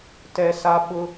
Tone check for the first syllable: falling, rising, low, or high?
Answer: high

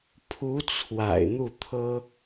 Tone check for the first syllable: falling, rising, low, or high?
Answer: rising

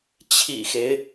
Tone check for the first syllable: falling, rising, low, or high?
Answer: low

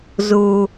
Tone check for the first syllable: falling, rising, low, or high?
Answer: low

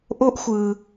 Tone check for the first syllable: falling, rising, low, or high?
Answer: high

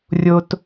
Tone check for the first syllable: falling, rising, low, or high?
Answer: low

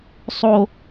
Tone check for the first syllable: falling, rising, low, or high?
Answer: high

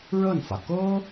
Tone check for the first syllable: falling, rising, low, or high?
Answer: falling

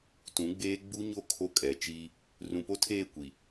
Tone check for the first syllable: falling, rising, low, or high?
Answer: rising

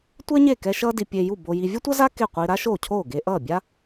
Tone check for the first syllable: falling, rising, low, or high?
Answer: high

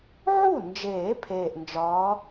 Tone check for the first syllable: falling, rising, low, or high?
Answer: falling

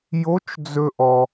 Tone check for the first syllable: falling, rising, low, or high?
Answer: rising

